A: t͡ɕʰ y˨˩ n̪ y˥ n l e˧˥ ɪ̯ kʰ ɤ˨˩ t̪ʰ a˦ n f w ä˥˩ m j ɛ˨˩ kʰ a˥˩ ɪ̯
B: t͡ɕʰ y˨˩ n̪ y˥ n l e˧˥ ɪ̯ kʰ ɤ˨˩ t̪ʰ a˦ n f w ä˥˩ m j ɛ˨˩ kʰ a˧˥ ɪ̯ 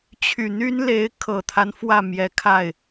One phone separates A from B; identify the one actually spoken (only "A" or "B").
A